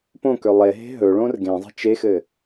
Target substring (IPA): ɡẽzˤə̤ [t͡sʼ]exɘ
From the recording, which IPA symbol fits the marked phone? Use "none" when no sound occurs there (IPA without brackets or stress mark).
t͡ʃ